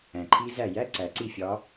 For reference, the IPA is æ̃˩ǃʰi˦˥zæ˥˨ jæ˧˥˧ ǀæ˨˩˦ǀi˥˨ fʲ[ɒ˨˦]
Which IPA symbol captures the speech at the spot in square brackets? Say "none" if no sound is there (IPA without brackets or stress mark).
ɒ˨˦